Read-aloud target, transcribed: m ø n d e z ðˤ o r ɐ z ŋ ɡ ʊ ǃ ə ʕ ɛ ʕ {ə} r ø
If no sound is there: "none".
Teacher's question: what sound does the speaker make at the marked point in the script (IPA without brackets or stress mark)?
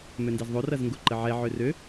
ø